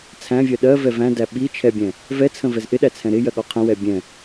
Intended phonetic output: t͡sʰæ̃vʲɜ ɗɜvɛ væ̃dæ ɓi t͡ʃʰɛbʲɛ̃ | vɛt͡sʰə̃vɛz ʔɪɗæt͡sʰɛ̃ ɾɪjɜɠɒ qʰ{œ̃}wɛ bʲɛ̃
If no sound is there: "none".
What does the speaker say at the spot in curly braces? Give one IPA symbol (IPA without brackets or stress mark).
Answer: ə̃